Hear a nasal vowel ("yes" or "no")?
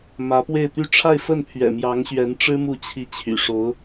no